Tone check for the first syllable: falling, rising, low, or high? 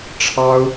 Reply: high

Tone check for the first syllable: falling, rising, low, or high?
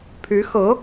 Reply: rising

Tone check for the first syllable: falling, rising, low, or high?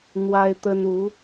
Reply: high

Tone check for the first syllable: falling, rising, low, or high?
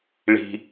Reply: low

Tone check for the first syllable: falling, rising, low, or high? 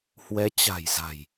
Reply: rising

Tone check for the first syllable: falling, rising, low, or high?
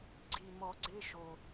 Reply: low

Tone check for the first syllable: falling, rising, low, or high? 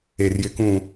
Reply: low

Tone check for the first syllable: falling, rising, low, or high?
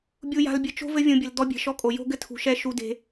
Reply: low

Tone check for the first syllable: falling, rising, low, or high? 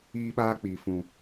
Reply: high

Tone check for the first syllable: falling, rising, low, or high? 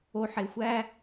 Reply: low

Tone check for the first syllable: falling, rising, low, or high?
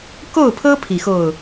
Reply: falling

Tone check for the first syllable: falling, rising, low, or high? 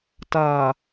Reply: low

